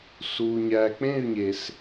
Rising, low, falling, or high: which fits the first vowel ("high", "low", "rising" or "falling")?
low